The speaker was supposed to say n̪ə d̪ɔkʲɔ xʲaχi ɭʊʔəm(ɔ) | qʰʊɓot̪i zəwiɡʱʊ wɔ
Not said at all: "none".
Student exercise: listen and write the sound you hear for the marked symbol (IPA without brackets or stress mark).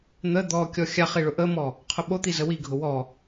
ɔ